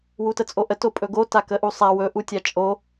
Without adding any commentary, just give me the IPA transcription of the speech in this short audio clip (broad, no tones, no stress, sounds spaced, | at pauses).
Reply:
w u t ə t͡sʼ o ʔ ə t o pʼ ɵ ɡ o t a k ə ʔ u sˤ a w ɵ ʔ u tʲ a t͡ʃʼ o